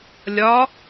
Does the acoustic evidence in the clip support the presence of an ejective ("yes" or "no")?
no